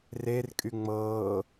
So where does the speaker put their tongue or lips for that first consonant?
tongue tip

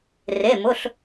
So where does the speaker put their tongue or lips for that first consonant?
tongue tip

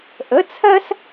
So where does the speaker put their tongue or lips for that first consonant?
throat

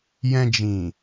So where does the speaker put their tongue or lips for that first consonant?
palate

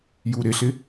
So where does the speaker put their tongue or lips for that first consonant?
palate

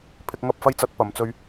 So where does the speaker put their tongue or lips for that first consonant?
lips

